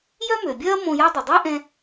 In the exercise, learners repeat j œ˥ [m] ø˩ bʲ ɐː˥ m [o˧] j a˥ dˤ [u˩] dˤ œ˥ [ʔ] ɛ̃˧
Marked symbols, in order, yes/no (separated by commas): yes, no, no, yes